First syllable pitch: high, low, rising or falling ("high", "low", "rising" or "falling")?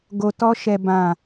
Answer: low